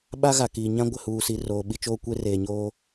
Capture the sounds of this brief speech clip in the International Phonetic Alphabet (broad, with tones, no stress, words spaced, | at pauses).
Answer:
ɓa˦ɣa˨kiː˨ɲã˦ ɡʷɪ˨huː˨si˨ roː˨ ɓi˦t͡ʃoː˦ kʷe˦reː˨ɲoː˦